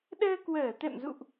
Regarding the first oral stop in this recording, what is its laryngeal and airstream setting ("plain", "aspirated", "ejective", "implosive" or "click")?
implosive